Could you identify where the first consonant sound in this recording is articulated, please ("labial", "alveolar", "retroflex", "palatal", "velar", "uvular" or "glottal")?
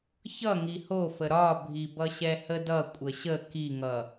palatal